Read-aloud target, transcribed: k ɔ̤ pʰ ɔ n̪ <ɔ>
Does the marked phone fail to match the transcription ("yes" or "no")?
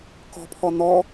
no